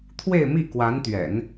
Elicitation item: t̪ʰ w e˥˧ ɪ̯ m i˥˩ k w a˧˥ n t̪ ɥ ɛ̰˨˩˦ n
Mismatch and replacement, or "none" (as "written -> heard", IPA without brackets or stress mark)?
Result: none